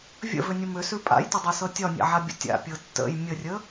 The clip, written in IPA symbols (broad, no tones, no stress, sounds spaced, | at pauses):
vʲ ə̰ v ʏ nʲ ə m ʏ s ʉ pʼ a̰ j t ʏ dˤ a s ɤ tʲ ɒ nʲ a̰ ʕ a bʲ ə̰ tʲ a̰ pʲ ɤ tː ə̰ j mʲ ə rʲ ə